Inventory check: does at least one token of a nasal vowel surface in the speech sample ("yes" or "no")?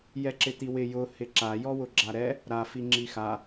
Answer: no